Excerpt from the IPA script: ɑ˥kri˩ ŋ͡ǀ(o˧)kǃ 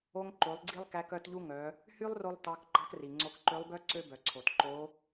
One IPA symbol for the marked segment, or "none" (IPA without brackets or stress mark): o˧